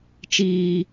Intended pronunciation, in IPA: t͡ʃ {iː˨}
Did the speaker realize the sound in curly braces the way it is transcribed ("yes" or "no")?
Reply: no